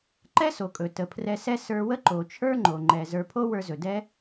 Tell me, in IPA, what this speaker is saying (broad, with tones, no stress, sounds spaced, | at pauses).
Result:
ǃ ɛ˦ s o˨ kʼ ɵ˨ t ə˨ pʰ r ɛ˧ s ɛ˦ s ə˞˧ w ə˦ ǃ o˨ t͡ʃʰ ə˞˦ ŋ͡ǃ o˨ ŋ͡ǃ ɛ˨ z ə˞˧ pʰ o˦ w ə˞˧ z ɵ˨ d ɛ˦